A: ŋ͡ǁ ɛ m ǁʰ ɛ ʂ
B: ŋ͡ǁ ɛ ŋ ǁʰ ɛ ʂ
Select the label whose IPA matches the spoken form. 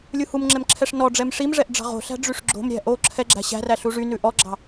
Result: A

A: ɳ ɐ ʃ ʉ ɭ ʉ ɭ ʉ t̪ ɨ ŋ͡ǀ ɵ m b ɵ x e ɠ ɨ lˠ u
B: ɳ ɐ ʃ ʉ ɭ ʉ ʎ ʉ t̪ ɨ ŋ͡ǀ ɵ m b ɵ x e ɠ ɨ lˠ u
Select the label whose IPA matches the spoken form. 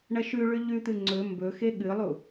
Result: B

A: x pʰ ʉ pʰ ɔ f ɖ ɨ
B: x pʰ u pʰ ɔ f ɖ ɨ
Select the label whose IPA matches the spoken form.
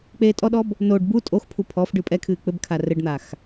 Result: B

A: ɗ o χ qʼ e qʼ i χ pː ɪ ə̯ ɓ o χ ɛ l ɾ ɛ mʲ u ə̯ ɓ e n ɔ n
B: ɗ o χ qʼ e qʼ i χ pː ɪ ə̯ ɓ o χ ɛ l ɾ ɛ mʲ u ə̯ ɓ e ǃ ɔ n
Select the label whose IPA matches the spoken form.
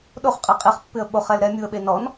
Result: A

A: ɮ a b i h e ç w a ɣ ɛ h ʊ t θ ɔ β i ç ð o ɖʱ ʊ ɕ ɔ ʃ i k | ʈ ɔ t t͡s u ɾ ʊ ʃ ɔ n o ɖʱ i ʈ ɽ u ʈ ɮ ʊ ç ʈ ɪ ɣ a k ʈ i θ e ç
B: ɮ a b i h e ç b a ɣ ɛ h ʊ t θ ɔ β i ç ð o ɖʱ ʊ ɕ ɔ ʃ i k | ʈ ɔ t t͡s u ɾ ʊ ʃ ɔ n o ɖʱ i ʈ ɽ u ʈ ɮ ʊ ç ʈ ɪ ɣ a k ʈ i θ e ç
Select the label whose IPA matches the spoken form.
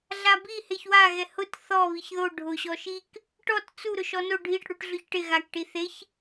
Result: A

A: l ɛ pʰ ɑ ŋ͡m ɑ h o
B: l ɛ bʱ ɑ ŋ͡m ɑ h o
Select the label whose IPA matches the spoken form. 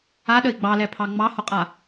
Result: A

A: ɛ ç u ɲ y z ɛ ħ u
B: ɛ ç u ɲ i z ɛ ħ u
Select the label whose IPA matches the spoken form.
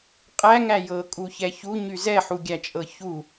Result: A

